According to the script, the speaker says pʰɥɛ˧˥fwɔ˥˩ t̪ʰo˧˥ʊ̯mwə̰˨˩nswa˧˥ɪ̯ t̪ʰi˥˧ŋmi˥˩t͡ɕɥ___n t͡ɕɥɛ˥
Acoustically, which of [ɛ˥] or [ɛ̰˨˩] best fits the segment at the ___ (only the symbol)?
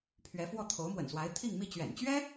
ɛ̰˨˩